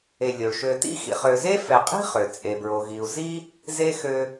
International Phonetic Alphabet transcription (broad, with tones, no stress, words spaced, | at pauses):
e˨lʲo˩ɭʃø˨tḭ˥ xḭ˨χ ø˨ze˥ fɛ˨qʼi̤˥χø˩ t͡sʼe˩bɹo˩ɣi˩u̯ zi˦ | ze˥xø˦